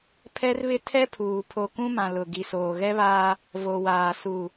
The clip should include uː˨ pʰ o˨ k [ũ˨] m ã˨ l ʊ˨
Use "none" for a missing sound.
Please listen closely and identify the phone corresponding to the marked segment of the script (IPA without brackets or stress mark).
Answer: ũ˦